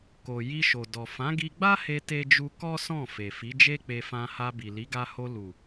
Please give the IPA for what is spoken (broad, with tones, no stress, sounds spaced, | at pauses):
k o˨ j i˧ ʃ o˨ d ɔ˨ f ã˨˦ ɡ i˧ ɡ͡b a˦ h e˧ t e˦ d͡ʒ u˦ k ɔ˦ s ɔ̃˦˨ f e˨ f i˨˦ d͡ʒ e˦ k͡p e˧ f ã˧ h a˧ b i˨ l i˨˦ ɡ a˧ h o˧ l u˨